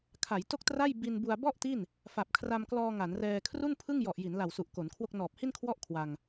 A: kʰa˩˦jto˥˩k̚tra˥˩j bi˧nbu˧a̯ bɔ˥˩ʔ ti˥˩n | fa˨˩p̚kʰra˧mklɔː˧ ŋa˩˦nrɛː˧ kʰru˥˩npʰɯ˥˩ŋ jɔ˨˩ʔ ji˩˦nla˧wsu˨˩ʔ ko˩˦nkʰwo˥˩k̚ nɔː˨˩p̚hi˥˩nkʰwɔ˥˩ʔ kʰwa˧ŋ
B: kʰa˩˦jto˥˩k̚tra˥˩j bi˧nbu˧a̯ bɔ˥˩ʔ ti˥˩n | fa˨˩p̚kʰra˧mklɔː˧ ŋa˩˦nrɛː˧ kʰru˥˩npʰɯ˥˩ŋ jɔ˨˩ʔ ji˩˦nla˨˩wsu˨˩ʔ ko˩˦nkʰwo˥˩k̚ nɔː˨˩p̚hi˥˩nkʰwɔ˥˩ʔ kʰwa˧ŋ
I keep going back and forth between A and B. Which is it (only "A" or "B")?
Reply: B